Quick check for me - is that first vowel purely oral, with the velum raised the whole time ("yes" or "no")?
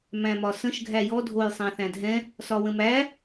no